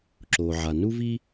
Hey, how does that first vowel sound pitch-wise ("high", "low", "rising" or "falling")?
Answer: low